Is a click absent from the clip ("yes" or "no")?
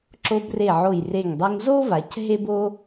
no